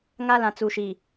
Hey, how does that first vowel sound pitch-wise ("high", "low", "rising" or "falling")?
high